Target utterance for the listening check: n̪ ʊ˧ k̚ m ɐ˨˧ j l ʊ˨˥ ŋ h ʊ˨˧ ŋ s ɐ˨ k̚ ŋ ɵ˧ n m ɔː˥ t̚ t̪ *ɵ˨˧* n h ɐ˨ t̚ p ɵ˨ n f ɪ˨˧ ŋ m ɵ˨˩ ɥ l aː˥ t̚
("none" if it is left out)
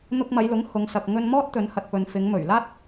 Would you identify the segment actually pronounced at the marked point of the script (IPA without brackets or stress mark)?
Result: ɵ˨˧